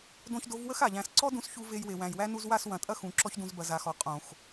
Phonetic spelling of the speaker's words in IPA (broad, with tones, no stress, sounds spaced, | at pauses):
d õ˧ ç d o˨˦ v w ə˦ x a˨ ʎ æ̃˧ s ǀ ɔ˦ d ũ˧ s ç u˧ v e˧ j w e˨ w æ̃˨ j w æ˦ n u˧ z w a˦˨ s w ɐ̃˨ tʼ ɐ˦ x ũ˨ ǁ ɔ˦ ç d ũ˧ z b ɐ˨ z a˨ x ɔ˨ qʼ õ˨ x